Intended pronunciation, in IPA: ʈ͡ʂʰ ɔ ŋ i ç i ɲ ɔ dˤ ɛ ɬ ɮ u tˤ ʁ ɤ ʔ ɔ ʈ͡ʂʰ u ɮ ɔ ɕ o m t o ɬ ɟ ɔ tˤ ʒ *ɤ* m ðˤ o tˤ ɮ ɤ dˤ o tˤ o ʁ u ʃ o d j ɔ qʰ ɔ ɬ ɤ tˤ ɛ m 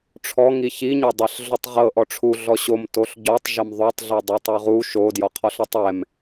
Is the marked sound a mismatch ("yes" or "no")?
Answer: no